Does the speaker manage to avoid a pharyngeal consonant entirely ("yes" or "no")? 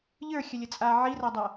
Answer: no